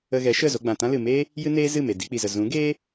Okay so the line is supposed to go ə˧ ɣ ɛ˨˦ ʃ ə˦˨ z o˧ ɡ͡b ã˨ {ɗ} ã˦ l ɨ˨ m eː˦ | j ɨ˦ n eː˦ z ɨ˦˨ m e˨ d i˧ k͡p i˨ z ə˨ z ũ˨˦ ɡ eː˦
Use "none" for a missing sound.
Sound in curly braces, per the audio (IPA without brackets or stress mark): t